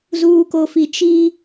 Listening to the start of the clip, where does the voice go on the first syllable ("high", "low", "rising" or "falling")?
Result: low